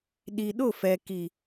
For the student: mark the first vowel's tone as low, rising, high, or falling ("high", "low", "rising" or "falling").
low